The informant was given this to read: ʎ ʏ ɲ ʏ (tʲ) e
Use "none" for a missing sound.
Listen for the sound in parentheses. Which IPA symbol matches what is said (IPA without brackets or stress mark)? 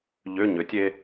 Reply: tʲ